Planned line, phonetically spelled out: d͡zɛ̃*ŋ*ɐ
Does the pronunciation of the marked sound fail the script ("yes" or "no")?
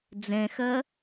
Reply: yes